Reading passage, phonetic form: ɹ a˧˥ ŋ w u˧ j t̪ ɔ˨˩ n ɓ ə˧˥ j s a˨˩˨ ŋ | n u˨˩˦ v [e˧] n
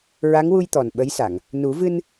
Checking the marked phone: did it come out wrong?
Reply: yes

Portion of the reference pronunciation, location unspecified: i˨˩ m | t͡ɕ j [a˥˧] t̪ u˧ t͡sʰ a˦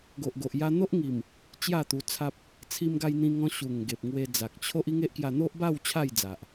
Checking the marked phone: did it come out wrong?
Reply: no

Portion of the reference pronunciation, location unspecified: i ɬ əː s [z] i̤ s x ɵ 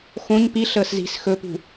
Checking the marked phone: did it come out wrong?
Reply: no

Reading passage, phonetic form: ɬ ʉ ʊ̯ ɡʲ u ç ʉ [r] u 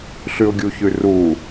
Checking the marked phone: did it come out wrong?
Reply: no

